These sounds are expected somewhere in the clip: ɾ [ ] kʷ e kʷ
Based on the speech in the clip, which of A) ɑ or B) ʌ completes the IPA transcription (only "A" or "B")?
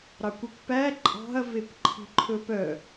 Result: A